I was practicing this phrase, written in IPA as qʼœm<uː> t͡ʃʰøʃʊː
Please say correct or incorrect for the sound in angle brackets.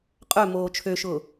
incorrect